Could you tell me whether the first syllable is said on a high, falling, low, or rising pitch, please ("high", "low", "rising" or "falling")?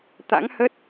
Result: rising